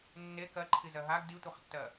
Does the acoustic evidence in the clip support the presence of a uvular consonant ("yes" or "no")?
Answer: yes